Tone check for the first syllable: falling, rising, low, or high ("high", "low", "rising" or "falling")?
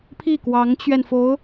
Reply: falling